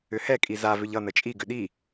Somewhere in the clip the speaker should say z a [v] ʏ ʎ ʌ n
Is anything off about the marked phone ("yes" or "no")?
no